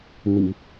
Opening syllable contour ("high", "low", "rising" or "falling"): low